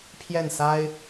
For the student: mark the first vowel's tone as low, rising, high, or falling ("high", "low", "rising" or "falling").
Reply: falling